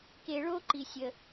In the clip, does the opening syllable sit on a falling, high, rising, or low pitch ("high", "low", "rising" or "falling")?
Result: low